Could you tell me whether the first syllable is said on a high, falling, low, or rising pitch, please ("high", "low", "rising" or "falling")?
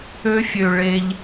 high